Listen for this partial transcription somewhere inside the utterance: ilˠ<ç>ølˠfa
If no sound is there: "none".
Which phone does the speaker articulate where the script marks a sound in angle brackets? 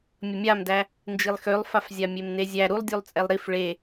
x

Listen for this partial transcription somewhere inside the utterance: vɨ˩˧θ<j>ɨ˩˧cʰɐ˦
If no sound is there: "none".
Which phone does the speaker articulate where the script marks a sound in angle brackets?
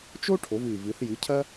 j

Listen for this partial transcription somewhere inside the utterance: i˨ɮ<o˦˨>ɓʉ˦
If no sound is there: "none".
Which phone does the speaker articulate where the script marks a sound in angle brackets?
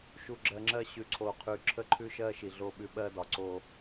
o˦˨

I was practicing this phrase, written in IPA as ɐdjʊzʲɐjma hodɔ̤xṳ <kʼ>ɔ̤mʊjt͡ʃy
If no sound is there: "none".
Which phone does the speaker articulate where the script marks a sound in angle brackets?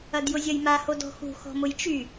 x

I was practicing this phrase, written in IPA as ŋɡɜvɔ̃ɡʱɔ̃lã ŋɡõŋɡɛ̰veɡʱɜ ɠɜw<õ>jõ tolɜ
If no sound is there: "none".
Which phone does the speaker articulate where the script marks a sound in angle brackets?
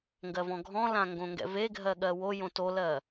o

